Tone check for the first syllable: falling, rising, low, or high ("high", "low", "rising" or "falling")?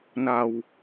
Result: low